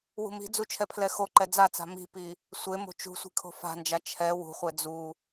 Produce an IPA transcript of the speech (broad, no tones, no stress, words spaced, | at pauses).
wṳmi̤d͡zu t͡ʃʰɛpʰlɛxoǃɛ d͡zat͡sa̤ mi̤pi | sʷemo̤ t͡ʃṳsʷi̤ kʰo̤fa̤nd͡ʒa t͡ʃʰɛ wṳχʷɛ d͡zu